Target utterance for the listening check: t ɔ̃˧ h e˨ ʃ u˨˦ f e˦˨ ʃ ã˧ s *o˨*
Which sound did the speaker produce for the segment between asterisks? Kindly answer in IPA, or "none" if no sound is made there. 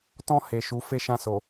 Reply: o˨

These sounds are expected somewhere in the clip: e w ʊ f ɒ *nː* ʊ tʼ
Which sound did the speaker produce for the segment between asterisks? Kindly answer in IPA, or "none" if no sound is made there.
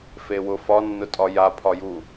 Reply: nː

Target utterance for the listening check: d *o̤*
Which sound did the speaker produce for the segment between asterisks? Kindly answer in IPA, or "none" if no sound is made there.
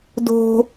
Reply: o̤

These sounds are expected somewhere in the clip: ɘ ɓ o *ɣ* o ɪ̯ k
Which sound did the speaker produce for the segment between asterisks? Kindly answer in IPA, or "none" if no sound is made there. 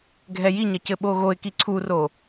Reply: ɣ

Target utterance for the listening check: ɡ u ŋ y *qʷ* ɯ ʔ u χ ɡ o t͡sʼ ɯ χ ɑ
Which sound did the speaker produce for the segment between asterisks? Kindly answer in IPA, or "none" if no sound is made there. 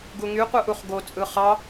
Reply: qʷ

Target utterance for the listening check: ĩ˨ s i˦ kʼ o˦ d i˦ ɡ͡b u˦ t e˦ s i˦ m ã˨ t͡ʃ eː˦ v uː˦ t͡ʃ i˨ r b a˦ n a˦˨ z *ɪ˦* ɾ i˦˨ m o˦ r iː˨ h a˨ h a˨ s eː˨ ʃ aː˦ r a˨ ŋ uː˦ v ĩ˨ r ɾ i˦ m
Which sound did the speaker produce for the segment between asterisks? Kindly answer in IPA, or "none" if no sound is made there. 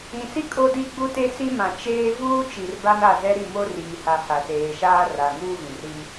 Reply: ɛ˦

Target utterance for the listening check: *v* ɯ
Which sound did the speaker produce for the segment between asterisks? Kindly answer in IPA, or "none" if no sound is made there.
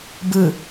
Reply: b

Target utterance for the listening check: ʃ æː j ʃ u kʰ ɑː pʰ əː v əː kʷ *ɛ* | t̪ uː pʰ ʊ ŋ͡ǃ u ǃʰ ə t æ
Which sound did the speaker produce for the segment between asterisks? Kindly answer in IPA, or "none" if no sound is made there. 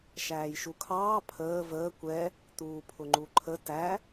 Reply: ɛ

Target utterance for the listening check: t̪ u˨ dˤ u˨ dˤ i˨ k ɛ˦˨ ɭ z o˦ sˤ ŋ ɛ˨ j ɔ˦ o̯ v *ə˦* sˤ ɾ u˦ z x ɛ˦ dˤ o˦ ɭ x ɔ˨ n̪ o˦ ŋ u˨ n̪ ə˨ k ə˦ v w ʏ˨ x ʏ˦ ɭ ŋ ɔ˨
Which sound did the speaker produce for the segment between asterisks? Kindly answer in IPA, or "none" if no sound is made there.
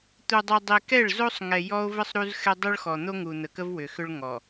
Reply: ə˦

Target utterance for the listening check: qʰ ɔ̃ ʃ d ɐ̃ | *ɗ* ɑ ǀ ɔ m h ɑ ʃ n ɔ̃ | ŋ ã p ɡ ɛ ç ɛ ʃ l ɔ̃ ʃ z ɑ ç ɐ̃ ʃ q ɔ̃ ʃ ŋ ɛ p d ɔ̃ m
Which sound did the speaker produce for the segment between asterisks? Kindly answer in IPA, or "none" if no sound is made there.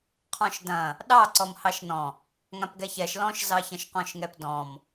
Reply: ɗ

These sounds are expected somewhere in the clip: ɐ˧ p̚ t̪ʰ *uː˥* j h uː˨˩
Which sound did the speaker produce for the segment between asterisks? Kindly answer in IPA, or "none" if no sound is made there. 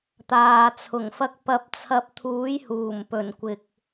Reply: uː˨˥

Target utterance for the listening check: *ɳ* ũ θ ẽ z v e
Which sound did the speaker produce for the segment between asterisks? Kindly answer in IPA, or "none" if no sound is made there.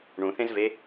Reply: ɳ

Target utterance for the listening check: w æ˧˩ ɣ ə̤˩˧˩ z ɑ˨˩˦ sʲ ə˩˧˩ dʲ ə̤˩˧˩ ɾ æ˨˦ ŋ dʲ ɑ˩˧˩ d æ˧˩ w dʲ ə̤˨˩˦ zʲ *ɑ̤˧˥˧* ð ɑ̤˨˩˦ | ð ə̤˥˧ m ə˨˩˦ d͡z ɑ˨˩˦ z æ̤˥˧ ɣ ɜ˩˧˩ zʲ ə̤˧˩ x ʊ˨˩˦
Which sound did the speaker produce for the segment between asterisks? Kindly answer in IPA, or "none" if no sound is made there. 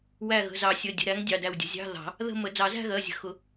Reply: ɑ̤˧˥˧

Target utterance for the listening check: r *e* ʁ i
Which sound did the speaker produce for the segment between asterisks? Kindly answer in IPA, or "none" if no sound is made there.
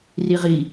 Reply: i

